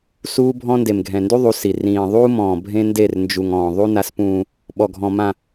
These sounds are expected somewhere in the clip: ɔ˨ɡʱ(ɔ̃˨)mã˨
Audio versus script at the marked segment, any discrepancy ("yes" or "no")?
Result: no